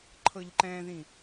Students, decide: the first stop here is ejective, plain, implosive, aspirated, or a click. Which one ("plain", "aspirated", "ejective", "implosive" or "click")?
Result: click